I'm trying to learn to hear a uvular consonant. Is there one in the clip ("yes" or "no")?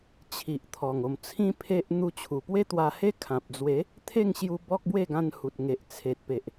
no